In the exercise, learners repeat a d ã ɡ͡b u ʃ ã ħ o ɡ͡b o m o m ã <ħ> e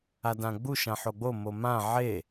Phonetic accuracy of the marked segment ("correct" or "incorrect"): incorrect